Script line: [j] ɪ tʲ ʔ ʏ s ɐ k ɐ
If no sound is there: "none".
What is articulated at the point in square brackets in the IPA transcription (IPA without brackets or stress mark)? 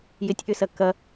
j